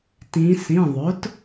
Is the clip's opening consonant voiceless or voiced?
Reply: voiceless